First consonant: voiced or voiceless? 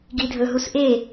voiced